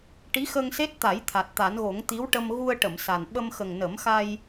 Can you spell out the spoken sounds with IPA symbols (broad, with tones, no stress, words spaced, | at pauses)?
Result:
ʈi˧˥xə˧ŋse˦˥t̚t̪a˨˩˦j t̪ʰa˨˩t̚t̪a˨˩˦nɣo˨˩˦ŋ t̪i˧˥wʈə˧m ɣu˧ə̯ʈə˨˩˨m sa˨˩n ɓə˧m xə˨˩ŋnə˨˩˦mxa˧j